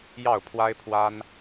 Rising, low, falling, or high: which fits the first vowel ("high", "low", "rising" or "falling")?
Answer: falling